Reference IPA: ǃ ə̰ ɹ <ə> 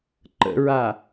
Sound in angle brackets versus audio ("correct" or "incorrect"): incorrect